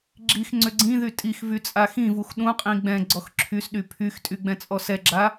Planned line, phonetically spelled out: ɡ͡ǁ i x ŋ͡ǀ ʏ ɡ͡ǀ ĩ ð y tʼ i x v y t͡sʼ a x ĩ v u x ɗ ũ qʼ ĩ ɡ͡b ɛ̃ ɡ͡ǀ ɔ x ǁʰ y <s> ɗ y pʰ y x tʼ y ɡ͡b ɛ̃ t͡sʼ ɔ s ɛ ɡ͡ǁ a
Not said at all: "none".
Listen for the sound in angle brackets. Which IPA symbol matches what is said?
s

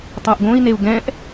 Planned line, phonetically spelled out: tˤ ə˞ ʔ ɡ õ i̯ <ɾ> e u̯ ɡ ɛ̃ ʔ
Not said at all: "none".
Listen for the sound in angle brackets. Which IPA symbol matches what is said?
n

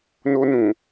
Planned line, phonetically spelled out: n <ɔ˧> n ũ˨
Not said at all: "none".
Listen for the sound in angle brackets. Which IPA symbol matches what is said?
o˧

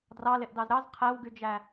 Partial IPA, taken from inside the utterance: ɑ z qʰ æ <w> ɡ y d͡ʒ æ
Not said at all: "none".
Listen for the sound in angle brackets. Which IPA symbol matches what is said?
w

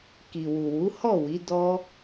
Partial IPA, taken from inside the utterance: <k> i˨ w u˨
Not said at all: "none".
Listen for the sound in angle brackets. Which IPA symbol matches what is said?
k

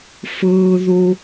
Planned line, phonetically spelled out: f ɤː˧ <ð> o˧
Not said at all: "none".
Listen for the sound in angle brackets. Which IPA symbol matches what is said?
ð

